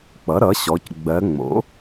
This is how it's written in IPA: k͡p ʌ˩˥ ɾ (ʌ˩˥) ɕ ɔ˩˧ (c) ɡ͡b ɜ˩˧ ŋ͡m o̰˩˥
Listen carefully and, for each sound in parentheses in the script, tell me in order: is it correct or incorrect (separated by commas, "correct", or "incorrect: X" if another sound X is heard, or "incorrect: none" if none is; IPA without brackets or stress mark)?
correct, correct